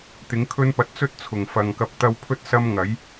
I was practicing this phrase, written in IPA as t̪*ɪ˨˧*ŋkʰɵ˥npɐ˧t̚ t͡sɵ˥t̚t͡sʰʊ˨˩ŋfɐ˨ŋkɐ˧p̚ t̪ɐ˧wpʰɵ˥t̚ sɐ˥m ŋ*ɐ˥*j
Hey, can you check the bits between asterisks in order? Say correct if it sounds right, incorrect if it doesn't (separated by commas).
incorrect, incorrect